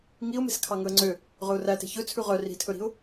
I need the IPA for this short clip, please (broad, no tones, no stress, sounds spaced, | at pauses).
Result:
ŋ i ʊ̯ m e̤ s kʰ ɑ ŋ ɵ ə̯ ŋ͡ǀ ø | ʁ ɵ ʊ̯ r æ t e̤ ç ɵ t͡sʰ ʉ ʁ œ r i̤ tʰ ɵ ɾ i̤ ʊ̯